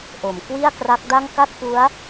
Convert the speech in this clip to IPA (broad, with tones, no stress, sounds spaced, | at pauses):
ʔ o˩˦ m k w i˥˩ a̯ k r a˦˥ k̚ d a˥˩ ŋ k a˥˩ t̚ p u˦˥ a̯